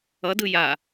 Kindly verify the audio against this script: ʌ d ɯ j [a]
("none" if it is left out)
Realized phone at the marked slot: a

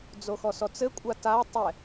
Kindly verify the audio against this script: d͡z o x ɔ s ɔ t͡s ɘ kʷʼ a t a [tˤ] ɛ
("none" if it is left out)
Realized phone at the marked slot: tˤ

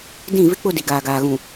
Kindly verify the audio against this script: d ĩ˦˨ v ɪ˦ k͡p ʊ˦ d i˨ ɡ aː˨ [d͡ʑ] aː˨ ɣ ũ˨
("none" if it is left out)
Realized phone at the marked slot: ɡ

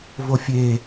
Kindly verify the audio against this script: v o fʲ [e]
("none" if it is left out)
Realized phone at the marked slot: e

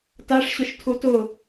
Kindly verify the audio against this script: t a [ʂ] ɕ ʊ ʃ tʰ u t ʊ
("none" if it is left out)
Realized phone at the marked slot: ʂ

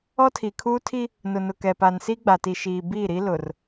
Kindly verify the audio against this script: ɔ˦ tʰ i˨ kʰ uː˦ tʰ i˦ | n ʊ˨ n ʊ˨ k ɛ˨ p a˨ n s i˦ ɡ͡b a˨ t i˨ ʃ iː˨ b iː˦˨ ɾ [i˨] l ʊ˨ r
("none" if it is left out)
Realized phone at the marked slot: i˦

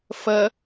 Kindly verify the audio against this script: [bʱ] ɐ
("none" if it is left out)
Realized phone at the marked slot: f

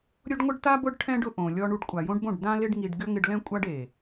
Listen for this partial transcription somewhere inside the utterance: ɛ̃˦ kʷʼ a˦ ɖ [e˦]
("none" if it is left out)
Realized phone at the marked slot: e˨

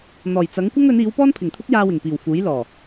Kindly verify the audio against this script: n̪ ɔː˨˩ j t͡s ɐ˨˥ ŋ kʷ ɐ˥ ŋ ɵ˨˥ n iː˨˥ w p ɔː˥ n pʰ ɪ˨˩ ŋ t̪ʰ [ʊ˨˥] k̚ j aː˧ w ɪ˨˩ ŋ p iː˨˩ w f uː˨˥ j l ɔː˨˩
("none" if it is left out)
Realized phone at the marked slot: ʊ˥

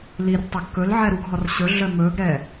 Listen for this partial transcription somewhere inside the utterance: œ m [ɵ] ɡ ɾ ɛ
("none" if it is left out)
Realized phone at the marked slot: ɵ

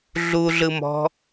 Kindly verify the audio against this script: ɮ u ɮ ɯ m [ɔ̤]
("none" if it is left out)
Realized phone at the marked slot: ɔ̤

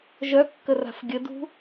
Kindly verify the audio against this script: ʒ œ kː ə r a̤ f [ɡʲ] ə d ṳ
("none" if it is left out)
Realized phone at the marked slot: ɡʲ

